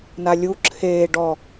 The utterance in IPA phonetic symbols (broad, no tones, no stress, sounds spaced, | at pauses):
n a lʲ u ǁʰ eː ɖ ɔ